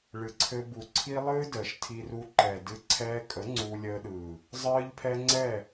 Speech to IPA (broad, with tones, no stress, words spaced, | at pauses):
ɭɨ˨ǀʰɘ˧ bu˨ ǀʰi˦lˠɨː˦dəː˨ʃ tʰi˧ru˧ ǃɛ˨dɨ˧ ǀʰɛː˧kʼə˨˦ ŋ͡ǀuː˧lʲəː˧ɗɯː˨ | zˤɨː˦ʎpʰɛ˦ ŋ͡ǀɛ˦˨